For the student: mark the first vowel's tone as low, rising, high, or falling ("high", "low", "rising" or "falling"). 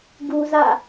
high